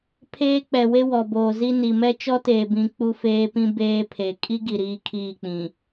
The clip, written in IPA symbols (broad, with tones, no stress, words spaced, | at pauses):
pʰeː˦k͡pɛ˨we˦ wɔ˨boː˨zi˦ ni˨mɛ˦ t͡ʃɔ˦teː˨bĩ˨ k͡pu˦feː˦pĩ˦ beː˦pʰe˨ kʼi˦ɡi˨ ɾiː˦kʰiː˦˨k͡pĩ˨